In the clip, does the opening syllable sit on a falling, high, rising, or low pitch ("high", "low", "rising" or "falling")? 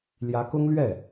rising